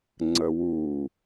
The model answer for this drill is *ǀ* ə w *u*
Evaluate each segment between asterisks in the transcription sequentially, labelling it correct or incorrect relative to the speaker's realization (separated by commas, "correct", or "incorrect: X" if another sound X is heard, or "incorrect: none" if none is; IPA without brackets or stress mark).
incorrect: ŋ͡ǀ, correct